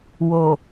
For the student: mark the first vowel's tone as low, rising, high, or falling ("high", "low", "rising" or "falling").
low